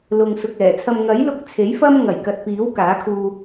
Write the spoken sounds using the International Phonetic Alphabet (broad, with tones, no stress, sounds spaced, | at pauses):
l ʊ˨ ŋ s ʊ˨ k̚ ɛː˨˩ t͡sʰ ɐ˧ m ŋ ɐ˨˥ j l ʊ˧ k̚ t͡sʰ e˨˥ j f ɐ˥ m ŋ ɐ˨˩ j k ɐ˨ t̚ p iː˨˥ w k aː˨˥ kʰ uː˧